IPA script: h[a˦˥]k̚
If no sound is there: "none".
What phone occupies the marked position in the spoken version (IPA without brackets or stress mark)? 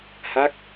a˦˥